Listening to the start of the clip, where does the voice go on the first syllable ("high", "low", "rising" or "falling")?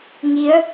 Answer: rising